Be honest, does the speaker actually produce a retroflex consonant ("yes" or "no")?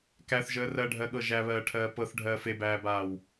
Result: yes